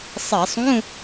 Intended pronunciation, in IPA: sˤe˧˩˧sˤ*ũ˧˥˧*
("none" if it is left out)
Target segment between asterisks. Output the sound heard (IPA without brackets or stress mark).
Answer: ũ˧˥˧